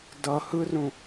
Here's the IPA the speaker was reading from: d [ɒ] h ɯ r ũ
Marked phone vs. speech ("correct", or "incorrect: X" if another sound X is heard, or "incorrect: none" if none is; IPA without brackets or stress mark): incorrect: ʌ